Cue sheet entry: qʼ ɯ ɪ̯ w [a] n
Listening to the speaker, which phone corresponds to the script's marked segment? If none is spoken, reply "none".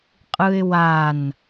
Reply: a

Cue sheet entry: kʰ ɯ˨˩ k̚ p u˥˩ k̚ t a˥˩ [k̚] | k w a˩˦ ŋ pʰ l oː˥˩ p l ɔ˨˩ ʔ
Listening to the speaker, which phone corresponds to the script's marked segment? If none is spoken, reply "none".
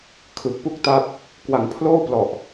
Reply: p̚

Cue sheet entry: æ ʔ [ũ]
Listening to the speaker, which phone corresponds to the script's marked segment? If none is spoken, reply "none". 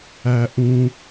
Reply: ũ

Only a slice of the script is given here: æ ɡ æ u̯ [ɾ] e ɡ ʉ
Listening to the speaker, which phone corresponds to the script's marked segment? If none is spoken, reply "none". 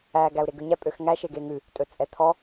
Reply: ɾ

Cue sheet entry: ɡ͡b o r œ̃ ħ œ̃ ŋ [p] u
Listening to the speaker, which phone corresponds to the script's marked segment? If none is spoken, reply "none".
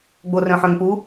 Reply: p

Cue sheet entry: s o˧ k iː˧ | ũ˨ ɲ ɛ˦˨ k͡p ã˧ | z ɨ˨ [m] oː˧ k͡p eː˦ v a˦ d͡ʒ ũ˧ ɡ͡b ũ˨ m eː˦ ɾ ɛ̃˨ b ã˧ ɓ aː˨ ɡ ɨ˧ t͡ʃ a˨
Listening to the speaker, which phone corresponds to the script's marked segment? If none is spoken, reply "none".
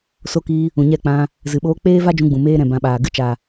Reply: ɓ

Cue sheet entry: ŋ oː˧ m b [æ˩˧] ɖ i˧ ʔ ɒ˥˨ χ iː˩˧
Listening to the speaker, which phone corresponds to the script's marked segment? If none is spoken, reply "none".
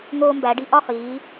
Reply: æ˩˧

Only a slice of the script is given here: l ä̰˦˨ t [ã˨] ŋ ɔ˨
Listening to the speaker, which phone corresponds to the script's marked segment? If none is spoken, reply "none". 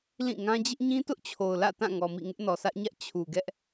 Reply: ã˦˨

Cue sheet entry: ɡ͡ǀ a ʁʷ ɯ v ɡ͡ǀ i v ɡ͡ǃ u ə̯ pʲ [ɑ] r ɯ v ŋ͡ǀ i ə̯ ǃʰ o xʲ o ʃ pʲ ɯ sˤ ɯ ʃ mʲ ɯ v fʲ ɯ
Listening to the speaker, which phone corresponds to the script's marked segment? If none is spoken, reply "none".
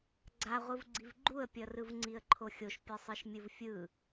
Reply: ʌ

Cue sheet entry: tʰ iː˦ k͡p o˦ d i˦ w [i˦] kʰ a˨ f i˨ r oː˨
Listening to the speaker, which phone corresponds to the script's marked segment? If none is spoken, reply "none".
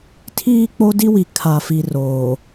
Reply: i˨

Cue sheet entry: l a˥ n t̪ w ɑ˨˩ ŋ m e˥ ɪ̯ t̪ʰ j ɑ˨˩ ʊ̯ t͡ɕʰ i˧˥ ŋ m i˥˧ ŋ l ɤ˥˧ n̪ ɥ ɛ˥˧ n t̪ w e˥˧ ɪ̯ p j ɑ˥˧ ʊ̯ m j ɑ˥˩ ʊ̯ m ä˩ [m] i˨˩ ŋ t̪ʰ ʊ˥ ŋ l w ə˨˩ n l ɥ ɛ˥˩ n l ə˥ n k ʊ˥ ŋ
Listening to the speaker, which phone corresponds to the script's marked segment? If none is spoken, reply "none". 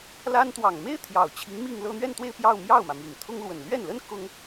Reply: m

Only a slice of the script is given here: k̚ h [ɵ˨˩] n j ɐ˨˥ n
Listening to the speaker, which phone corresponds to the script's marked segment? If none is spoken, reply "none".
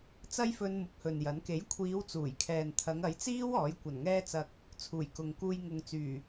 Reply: ɵ˨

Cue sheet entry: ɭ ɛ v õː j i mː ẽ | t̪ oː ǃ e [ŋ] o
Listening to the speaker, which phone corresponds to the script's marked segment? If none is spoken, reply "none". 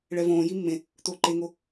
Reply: ŋ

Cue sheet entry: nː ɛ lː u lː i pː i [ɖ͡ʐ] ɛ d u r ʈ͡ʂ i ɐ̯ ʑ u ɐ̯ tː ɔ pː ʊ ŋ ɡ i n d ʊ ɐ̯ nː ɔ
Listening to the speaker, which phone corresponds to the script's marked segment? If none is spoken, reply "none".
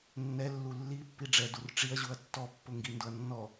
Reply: ɖ͡ʐ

